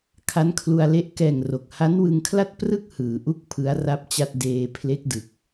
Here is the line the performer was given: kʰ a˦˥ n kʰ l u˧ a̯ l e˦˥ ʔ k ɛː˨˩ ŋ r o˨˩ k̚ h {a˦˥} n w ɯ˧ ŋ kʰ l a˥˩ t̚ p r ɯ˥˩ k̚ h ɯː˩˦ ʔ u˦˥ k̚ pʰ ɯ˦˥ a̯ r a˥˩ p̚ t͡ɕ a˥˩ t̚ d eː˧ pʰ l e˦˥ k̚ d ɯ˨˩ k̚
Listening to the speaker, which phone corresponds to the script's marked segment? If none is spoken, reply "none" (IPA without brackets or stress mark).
a˦˥